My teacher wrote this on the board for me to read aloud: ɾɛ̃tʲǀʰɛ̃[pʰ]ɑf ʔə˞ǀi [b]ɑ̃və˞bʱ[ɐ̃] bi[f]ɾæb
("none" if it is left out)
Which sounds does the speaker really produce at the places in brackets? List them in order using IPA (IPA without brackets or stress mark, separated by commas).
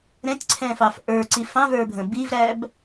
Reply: f, f, ə̃, v